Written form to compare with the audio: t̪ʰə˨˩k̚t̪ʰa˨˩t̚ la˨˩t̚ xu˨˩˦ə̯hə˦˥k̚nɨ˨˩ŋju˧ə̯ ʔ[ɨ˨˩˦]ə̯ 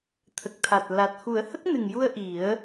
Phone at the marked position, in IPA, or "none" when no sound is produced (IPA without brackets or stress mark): i˨˩˦